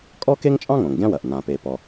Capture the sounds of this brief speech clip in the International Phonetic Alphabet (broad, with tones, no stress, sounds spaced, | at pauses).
kʼ ɔ˥ k e˥ ŋ t͡ʃʼ ɑ̃˥ ŋ õ˩ ŋ ɡʲ ɑ̃˥ w ɐ˩ ʔ n ã˩ p e˩ p ɔ˩